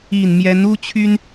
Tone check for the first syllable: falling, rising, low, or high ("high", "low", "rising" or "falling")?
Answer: low